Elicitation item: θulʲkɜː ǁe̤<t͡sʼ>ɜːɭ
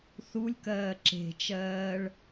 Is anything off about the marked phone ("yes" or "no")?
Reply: yes